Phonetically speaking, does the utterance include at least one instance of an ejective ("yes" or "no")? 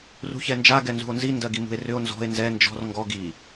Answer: no